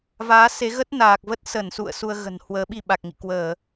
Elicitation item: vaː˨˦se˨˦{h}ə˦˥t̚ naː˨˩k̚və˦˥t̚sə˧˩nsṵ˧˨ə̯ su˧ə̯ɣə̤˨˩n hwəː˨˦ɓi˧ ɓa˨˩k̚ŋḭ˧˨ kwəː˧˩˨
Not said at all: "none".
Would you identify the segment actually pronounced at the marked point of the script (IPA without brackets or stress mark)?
ɣ